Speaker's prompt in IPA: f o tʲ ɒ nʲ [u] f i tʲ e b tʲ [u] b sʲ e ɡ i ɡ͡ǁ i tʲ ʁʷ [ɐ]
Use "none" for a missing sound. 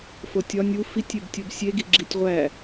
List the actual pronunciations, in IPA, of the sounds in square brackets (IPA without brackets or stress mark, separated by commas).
u, o, æ